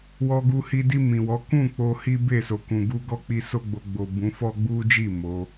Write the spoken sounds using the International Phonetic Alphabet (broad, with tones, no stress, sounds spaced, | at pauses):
w ɔ˧ ɡ u˧ h i˧ d i˧ m ĩ˨ w ɔ˨˦ k ũ˦˨ k͡p o˧ h i˦ b e˦˨ s o˨ k ũ˨ ɡ u˧ ɡ ɔ˦ k͡p i˦ s o˦ ɡ͡b o˧ ɡ͡b o˨ b ũ˨˦ f ɔ˦ ɡ͡b u˦ d͡ʒ i˦˨ m o˨˦